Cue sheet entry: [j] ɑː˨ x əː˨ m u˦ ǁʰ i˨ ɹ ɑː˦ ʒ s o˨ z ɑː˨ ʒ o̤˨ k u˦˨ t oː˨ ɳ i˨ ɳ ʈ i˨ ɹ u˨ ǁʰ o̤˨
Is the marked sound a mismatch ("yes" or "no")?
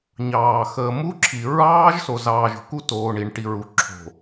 yes